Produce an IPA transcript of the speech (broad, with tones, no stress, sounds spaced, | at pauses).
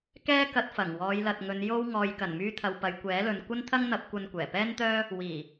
k ɛː˥ k ɐ˧ t̚ f ɐ˨˩ ŋ w ɔː˨˧ j l ɐ˨ t̚ ŋ ɵ˨˧ n j o˥ w ŋ ɔː˨ j k ɐ˨˩ n m yː˧ t̪ʰ ɐ˨ w p ɐ˨ j kʷ ɛː˨˥ l ɵ˨ n kʷ ɐ˥ n t̪ʰ ɐ˥ ŋ n̪ ɐ˨˥ p̚ kʷ ɐ˧ n kʷ ɛː˨˩ p ɛː˥ n t̪ œː˥ | w iː˨˩